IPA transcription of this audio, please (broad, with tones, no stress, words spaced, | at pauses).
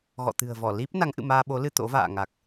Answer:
ɣɔ̰˧˨t̪ɨ̤˨˩ə̯vɔ˧˩ li˦˥p̚ na˨˦ŋʔɨ̰˧˨maː˧ ɓo˨˦lɨ˧ t̪o̰˧˥va̰ː˧˨ŋa˨˩k̚